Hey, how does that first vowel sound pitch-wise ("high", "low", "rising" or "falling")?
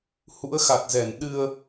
rising